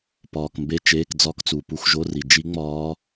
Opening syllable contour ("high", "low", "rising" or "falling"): low